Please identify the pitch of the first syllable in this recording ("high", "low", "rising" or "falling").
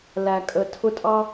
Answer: low